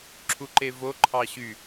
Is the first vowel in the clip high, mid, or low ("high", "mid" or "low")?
high